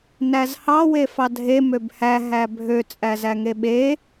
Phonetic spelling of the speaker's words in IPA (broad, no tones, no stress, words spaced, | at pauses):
næzhɑ wefɑdʱe møbhæ ɦæbʱø t͡sʼæzæŋeɓe